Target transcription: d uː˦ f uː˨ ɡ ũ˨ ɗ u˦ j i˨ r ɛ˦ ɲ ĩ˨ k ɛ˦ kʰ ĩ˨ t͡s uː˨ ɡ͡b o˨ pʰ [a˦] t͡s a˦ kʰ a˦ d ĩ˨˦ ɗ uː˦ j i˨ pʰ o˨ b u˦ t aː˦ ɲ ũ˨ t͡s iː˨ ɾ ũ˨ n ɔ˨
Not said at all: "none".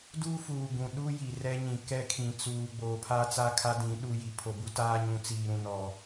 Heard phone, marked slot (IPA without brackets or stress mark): a˦